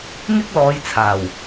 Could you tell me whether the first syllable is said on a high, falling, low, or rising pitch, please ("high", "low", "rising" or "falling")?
high